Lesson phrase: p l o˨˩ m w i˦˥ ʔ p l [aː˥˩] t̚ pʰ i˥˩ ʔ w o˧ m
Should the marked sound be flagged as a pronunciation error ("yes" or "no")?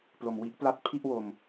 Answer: yes